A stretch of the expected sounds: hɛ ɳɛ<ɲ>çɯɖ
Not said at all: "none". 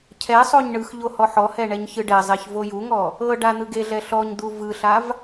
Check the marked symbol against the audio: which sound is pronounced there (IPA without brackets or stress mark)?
ɲ